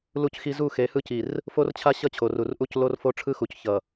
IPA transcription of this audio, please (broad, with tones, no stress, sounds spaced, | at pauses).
l u˦ c x i˦ z u˦˨ x e˨˦ h ɯ˦ c i˨ r | f o˦ r t͡ɕʰ a˦ ɕ ʌ˦ t͡ɕʰ o˨ r u˨ r ʔ u˦ c l o˦ r f o˦ ʈ͡ʂʰ ɯ˦ x u˨ c ç ʌ˨